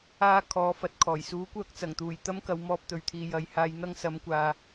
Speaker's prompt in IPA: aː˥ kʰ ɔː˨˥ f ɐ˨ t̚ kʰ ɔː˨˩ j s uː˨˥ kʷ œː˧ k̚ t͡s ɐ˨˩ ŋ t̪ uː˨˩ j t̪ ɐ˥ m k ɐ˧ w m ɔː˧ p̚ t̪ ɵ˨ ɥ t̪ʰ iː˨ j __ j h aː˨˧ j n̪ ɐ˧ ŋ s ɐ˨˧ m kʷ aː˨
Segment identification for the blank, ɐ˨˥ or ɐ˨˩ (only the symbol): ɐ˨˥